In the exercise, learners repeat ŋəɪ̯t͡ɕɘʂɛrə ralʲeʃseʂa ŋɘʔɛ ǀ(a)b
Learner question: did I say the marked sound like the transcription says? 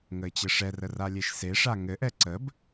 no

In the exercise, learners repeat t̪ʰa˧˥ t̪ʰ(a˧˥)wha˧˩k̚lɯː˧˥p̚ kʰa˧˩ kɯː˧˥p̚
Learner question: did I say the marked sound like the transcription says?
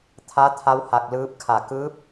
yes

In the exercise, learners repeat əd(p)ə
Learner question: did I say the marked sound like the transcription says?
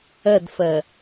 no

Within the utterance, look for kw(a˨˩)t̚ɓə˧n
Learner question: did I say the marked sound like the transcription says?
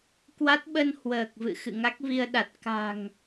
no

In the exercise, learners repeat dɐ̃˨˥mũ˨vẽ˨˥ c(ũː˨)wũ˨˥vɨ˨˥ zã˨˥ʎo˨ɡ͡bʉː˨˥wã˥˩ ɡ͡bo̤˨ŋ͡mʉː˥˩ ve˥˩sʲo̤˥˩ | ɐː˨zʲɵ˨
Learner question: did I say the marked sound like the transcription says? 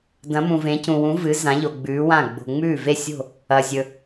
no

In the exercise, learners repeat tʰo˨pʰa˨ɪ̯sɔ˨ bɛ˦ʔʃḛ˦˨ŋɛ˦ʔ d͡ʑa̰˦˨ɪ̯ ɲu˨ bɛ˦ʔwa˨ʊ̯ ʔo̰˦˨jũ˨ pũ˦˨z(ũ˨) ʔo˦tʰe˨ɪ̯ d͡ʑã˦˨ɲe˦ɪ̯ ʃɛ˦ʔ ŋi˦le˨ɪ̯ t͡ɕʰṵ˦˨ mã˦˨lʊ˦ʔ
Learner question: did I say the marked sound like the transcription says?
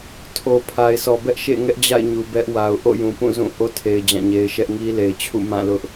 no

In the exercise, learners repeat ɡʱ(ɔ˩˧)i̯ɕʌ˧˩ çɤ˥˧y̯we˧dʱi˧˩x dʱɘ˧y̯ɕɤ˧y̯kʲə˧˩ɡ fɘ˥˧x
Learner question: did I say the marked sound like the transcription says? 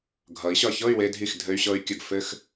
no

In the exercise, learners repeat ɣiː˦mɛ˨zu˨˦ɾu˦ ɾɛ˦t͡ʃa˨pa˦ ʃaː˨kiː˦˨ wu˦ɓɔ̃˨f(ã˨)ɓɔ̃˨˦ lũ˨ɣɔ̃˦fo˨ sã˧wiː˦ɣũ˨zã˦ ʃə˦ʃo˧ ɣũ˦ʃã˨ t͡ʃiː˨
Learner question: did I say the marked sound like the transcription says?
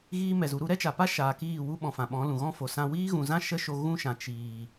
yes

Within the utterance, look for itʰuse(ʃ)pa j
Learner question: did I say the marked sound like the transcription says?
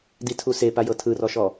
no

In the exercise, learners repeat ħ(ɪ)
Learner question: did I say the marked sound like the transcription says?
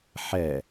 no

